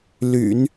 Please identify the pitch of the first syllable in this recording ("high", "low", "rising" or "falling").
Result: low